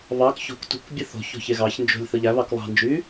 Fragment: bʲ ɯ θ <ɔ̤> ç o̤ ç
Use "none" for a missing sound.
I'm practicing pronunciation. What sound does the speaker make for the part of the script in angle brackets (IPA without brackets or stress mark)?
o̤